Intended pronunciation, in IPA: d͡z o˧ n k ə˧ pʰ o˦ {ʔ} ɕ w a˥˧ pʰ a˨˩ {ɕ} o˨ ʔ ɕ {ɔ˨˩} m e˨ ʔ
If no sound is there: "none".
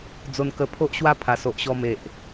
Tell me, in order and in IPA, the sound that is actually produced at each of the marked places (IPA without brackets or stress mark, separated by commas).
ʔ, s, ɔ˧